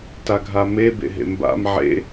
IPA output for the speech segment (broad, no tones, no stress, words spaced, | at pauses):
taɡʱame bḛɦḛmba̰m ʕḛ